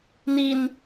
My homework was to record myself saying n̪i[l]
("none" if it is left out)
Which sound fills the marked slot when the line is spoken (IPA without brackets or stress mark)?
n